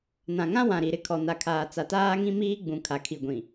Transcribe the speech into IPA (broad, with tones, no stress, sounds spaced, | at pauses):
n ã˨ ŋ ã˦ w ã˨ ɾ i˨ ɾ ɪ˦ kʰ ɔ˨ n a˨ kʰ aː˨ t͡s a˨ t aː˦ ŋ ĩ˦ m iː˦ ɡ͡b ũ˨ kʰ a˨ kʰ i˨ ɡʷ ĩ˨